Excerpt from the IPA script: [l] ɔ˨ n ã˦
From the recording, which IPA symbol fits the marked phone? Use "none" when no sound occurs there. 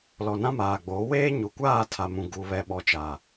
l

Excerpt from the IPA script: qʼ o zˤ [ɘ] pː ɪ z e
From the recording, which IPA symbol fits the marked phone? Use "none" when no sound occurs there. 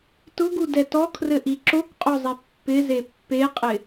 e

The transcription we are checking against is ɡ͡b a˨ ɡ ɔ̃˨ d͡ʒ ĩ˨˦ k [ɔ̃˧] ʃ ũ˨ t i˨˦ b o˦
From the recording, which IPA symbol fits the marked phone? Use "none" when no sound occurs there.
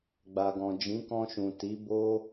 ɔ̃˧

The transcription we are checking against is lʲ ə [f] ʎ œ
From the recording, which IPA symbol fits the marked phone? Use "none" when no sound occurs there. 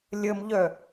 m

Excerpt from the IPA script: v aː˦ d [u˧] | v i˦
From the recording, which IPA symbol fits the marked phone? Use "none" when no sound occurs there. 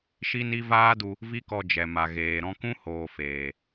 u˧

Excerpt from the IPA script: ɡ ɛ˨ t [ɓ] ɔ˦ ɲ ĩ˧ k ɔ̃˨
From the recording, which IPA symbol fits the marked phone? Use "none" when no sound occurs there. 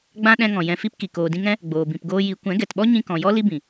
ɓ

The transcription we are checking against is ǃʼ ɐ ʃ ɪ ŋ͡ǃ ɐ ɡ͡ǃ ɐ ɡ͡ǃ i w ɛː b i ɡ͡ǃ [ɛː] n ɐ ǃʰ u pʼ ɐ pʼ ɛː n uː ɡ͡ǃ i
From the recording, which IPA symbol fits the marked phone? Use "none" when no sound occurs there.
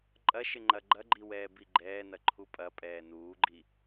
ɛː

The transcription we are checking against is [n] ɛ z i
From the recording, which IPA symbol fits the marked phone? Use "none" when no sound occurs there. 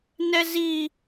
n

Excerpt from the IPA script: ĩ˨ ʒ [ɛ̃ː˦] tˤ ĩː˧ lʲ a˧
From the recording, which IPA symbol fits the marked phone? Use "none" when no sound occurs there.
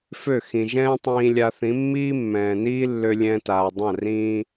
ɛ̃ː˦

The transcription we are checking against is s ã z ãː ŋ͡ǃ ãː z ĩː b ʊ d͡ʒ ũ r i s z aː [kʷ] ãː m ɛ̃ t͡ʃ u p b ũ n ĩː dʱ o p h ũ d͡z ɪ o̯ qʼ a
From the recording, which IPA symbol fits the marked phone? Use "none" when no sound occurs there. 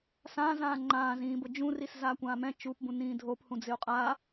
kʷ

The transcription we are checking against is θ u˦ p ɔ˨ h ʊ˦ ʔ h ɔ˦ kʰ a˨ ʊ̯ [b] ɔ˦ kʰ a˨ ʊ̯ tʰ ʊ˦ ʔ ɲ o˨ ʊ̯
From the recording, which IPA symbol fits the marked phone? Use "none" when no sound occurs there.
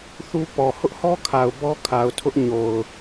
b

